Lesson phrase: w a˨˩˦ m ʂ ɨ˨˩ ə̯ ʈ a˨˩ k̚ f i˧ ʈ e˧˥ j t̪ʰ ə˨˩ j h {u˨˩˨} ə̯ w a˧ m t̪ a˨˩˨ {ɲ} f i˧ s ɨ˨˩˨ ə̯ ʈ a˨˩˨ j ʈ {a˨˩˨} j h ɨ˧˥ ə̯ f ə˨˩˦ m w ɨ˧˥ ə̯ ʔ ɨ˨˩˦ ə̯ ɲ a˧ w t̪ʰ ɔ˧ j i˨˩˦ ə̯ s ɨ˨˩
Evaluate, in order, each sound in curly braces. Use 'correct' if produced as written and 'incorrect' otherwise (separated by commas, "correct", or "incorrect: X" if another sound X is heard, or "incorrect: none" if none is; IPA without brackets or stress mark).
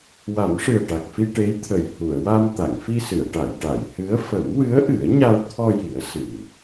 correct, incorrect: ŋ, correct